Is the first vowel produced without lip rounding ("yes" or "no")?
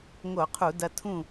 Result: no